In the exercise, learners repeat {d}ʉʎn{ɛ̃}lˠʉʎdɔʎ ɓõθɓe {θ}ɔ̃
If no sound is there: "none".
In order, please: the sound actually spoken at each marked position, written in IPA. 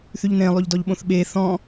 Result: θ, ẽ, θ

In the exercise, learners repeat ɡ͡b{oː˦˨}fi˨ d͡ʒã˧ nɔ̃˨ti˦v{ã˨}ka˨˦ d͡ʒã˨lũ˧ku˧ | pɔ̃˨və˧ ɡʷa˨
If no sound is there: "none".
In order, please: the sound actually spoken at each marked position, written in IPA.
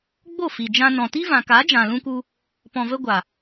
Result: o˦˨, ã˨

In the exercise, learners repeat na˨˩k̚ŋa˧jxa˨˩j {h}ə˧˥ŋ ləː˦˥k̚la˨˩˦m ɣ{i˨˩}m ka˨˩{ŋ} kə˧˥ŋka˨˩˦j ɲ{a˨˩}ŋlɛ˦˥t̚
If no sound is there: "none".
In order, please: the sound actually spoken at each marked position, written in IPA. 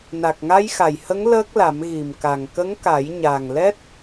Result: h, i˨˩, ŋ, a˨˩

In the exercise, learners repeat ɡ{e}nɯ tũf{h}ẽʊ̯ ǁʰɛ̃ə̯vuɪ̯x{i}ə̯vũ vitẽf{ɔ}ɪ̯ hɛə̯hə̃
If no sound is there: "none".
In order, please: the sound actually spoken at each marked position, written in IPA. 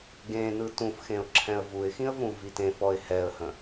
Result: ẽ, x, ĩ, ɔ

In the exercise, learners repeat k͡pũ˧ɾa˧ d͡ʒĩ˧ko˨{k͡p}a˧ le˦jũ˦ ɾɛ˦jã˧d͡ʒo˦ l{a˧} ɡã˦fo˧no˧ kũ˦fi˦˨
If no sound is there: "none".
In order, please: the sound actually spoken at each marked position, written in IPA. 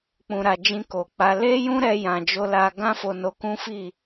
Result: k͡p, a˧

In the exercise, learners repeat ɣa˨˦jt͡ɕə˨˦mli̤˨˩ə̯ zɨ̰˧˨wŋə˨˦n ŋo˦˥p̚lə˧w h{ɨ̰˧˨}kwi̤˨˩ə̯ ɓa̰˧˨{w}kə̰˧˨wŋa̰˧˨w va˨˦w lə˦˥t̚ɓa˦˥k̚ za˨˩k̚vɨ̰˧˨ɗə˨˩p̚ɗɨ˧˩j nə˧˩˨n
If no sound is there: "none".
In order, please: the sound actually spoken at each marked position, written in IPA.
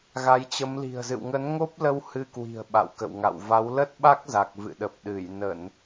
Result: ɨ˧, w

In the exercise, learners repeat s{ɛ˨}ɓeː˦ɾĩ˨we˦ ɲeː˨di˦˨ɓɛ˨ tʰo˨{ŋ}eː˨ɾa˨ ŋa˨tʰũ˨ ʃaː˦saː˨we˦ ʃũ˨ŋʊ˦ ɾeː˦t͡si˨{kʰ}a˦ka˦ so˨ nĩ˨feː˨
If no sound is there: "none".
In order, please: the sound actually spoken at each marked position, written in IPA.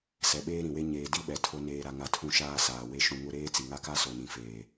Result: ɛ˨, n, ŋ

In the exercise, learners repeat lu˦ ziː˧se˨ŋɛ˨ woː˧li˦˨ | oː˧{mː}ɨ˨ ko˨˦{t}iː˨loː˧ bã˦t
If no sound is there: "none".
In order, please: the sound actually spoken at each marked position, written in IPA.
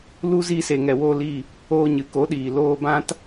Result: ɲ, ɗ

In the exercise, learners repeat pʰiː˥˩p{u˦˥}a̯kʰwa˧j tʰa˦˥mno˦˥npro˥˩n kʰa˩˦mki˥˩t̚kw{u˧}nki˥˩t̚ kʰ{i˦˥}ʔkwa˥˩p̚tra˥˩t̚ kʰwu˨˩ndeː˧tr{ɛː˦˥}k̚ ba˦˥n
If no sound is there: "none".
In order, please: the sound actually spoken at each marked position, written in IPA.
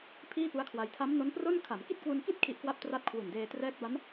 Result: u˦˥, u˧, i˦˥, ɛː˦˥

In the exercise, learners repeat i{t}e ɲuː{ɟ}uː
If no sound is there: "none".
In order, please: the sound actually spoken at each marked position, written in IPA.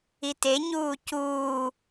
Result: t, c

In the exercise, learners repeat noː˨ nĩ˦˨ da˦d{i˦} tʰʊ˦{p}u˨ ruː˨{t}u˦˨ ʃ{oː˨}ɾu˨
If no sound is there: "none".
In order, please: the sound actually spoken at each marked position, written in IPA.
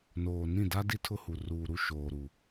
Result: i˦, h, ɾ, oː˨

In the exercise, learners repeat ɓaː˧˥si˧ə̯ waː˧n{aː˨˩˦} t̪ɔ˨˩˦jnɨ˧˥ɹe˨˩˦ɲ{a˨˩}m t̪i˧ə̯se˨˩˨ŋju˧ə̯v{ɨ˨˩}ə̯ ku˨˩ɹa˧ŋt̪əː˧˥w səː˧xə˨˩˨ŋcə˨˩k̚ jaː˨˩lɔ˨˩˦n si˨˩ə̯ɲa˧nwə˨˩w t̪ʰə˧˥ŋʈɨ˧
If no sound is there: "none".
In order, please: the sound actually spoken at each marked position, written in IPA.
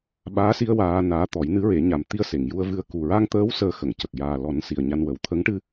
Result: aː˧˥, a˨˩, ɨ˧

